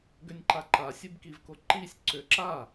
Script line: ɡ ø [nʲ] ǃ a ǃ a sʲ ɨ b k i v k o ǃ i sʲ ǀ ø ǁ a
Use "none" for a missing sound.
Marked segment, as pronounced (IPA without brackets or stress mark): nʲ